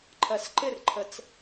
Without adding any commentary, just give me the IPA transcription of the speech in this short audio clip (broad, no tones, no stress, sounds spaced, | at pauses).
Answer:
ǃʰ ɜ s ǃ ɪ r ǃʰ ə t͡s